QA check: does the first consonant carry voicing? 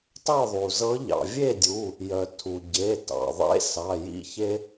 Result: no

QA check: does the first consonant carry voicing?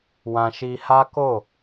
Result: yes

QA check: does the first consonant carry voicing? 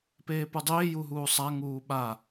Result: no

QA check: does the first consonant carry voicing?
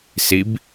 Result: no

